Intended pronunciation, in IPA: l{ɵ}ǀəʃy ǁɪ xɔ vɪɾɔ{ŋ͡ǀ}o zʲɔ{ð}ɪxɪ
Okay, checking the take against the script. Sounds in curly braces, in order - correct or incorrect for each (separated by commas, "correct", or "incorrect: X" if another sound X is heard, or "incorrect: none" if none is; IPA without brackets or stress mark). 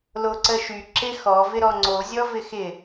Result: incorrect: o, correct, incorrect: v